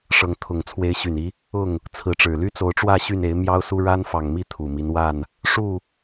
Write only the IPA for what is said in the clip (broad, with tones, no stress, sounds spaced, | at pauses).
ʂ ɤ˨˦ ŋ t̪ʰ ʊ˨˩ ŋ t͡sʰ w e˨˦ ɪ̯ ɕ y˨˩ n i˦ | ʊ˥˨ ŋ | t͡sʰ ɹ̩˨˦ ʈ͡ʂ ɻ̩˨˩ l y˦ t͡s o˨˦ ʊ̯ ʈ͡ʂ w ä˥˨ ɕ y˥˨ n e˨˦ ɪ̯ m j ɑ˦ ʊ̯ s u˦ ɻ a˦ n f ɑ˨˩ ŋ m i˥˨ t̪ʰ u˨˩ m i˦ n w a˥˨ n | ʂ u˥˨